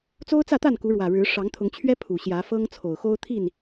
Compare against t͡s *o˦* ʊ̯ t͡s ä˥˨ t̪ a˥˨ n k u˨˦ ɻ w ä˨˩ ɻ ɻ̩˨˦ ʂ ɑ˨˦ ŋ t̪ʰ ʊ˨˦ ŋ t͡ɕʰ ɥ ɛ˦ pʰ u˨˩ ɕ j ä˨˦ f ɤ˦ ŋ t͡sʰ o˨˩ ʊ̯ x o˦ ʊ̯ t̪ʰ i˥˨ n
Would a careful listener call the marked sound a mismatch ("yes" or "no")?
no